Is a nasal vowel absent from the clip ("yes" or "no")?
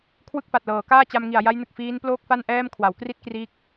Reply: yes